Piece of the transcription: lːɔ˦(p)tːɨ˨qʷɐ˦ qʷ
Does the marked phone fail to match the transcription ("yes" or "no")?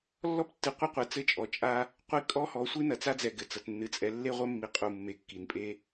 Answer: no